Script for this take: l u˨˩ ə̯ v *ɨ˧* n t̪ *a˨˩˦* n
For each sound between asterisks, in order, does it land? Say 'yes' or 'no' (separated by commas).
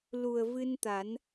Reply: yes, yes